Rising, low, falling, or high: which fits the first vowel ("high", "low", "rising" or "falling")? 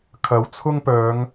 rising